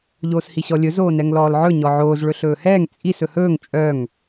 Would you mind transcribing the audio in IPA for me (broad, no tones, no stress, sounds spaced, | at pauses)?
ʎ oː s h i ɕ ɔ lʲ ɵ z oː n ɛ ŋ l ɔː l ʕ ɵ ɲ ɔ ʕ oː z ɭ ɵ ɬ ɵː h ɛː ŋ t͡sʼ i s ɵ h ɵː ŋ t͡ʃʼ œ ŋ